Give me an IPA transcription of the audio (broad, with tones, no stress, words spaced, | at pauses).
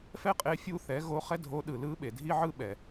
fɛ˥qʼe˧˥ fʲu˧θɛ˩˧ ɣo˧˥χɛ˥dʱo˧˥ ɗɯ˩lɯ˧˥ ɓe˩dʱi˥ʕɯ˥ɓɛ˩